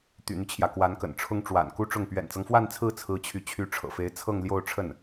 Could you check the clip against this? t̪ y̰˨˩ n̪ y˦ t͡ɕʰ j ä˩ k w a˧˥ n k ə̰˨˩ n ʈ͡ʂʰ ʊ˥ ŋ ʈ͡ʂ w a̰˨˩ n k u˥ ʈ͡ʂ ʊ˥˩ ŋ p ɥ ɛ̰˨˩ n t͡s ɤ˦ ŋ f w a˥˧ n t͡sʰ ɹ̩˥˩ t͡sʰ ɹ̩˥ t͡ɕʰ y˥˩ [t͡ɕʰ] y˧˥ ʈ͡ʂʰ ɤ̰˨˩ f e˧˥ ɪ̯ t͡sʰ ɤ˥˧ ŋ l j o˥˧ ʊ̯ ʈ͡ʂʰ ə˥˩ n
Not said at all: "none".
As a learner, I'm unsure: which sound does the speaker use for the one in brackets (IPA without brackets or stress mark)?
t͡ɕʰ